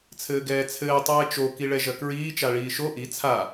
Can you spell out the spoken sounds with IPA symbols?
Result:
t͡sʰ ɘː ɡ ɛː t͡sʰ ɘː tˤ ɛː t͡ʃ o k i ɭ ɛ ʒ ɐ k ɹ iː t͡ʃ a ɭ iː ʃ o ʔ i t͡sʰ a

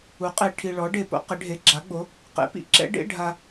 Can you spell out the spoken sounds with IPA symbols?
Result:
u˩˥ qʼ e˨ ʈʰ i˨ ɭ ɔ˩˥ ɖ e˨ p o̰˥ q ɪ˩˥ ɖʱ e˩˥ ɡ͡ǁ a˩˥ ɡ͡b o˩˥ | q ḛ˩˥ p ḭ˩˥ ǁ ɛ̰˧˥ ɖ ḛ˧˥˧ ɖʱ a˨

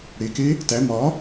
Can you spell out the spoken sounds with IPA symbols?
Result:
ɽ e k e | t æ m ɒ

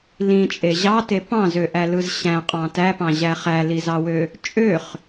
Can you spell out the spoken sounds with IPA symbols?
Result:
l ĩ t͡ʃʼ e ʑ ɑ t e p ɑ̃ z ø ʔ æ l ɯ z ɕ æ̃ qʼ ɑ̃ t æ p ɑ̃ ʑ æ χ æ l i z ɑ w ø | t͡ʃʼ ø χ

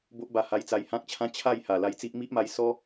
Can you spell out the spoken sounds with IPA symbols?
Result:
b o˦ ʔ b a˧ h a˧ j t͡s a˧ j h ã˦ k̚ t͡ɕʰ ã˦ t͡ɕʰ a˥˧ j h a˨˩ l a˧ j t͡s i˦ ʔ m i˦ ʔ m a˧ j s ɔ˦

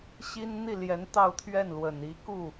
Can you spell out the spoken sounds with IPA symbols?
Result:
ɕ i˥ n n̪ i˥˩ l j ɛ˧˥ n t̪ ɑ˥˧ ʊ̯ t̪ʰ ɥ ɛ˥˩ n l w ə˨˩ n i˧˥ k u˥˩

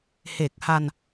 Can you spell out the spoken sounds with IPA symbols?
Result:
h e˨˩ k̚ h a˧ n

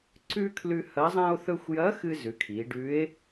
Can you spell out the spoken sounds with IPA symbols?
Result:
ǀ ʉ˥ kʰ l ʉ˧ h ɐ˧˥ zˤ ã˥ o̯ θ ɵ˥ xʷ j ɐ˧˥ x ɨ˧ z ʉ˩˧ kʰ i˩˧ ɖ ʉ˧˥ e̯

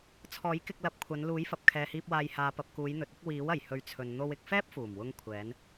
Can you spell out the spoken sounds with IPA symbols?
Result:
t͡sʰ ɔː˨˥ j k ɪ˧ k̚ l ɐ˨˥ p̚ kʷʰ ɐ˨˧ n l uː˨˥ j f ɐ˨ p̚ kʰ ɛː˨ h iː˧ p̚ w aː˧ j h aː˨ p ɐ˨ p̚ k uː˨˧ j n̪ ɵ˨ t̚ ɪ˨˥ k̚ w iː˨˥ w ɐ˨˩ j h ɵ˨˥ ɥ t͡sʰ ɵ˨ n n̪ o˧ w ɪ˧ k̚ f ɛː˥ p̚ f uː˨˩ m w ʊ˧ ŋ kʷʰ ɛː˨˧ n

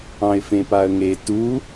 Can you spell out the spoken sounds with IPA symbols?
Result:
ɑ̃ ɪ̯ f ẽ p a ə̯ ŋ e t u

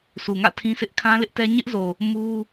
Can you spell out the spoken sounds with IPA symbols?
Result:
s u˨ ŋ ä̰˦˨ tʰ ĩ˦ s ɪ˦ ʔ kʰ ã˦ l ɪ˦ ʔ t ɛ˦ ɲ ɪ˦ ʔ z o˨ | m u˦

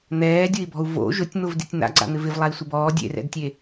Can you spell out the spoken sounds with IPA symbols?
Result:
n̪ ɛː dʲ ʊ i̯ b ɔ̤ u̯ v o̰ ʒ ʊ tʲ n̪ ʊ v d i tʲ n̪ a̰ ɡ͡ǀ a̰ n̪ ɪ v ɪ v lˠ a i̯ sʷ ɪ b ɔː dʲ ḛ r ɛ̰ d tʲ e

